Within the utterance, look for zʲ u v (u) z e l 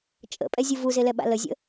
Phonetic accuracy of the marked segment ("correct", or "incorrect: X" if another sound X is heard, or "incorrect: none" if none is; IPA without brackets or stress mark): correct